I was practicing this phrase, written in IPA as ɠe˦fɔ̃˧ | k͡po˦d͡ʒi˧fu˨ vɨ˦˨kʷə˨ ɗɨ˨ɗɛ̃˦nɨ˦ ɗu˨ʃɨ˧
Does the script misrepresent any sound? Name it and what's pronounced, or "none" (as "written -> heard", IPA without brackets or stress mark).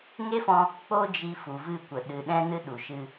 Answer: ɠ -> ŋ